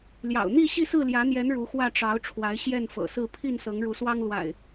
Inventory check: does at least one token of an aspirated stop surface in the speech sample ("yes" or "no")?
yes